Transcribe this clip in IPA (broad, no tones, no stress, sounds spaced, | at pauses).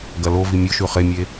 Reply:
ɡ ɐ l o v i mʲ ɵ ʃ ʉ χ e mʲ e